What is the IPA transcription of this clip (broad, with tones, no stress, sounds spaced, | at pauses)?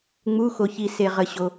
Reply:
ŋ͡m u˩˧˩ x o˩ ç i˩ s e˩ ʁ ə˩ ɕ o˩